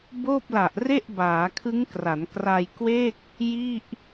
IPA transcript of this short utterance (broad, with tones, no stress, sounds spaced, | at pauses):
b oː˥˩ p̚ l a˨˩ ʔ r e˥˩ ʔ b aː˩˦ kʰ ɯ˦˥ ŋ k r a˩˦ n k r a˧ j k w e˥˩ k̚ | j i˥˩ ʔ